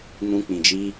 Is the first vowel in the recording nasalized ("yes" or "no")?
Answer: yes